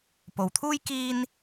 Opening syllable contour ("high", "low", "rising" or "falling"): low